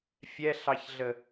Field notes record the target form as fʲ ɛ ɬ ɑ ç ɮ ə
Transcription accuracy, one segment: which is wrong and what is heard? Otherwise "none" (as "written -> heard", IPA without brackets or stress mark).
none